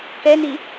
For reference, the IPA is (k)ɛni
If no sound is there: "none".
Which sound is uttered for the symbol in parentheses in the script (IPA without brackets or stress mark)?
k